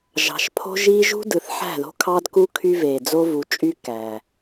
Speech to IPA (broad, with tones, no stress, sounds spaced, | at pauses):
ʒ ɑ̤˨ ʃ pʰ o̤˦ ʒ iː˦ ʒ ṳ˦ d ɯ˨ θ ħ æ̤˦˨ ð o̤˦ kʰ ɑ˦ d k u˦ kʰ y˦ v eː˨ d͡z o˦ v u˨˦ t͡ʃʼ y˦ k æː˨